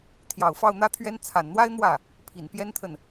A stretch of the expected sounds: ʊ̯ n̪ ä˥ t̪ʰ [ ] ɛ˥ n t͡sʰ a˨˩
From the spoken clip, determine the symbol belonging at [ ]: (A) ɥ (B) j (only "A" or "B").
A